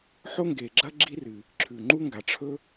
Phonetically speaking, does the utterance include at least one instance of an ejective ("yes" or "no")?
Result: no